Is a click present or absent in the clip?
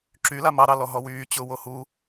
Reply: present